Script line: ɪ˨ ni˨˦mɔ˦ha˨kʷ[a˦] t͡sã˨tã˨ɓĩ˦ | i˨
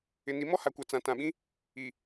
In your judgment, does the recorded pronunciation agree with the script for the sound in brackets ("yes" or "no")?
no